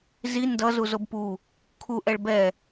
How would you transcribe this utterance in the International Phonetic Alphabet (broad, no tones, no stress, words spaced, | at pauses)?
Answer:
zi ndʌzuzob pu | kʰuʔɛɭ bɛ